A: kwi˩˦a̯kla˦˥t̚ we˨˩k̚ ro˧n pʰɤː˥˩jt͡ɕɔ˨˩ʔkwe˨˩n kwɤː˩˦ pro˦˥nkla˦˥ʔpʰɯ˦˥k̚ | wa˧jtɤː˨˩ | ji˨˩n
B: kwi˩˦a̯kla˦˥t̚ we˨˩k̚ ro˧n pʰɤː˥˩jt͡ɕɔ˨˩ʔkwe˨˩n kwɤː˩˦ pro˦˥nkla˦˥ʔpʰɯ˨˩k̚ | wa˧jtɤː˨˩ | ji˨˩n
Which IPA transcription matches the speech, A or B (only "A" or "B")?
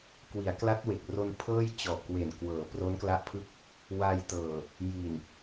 A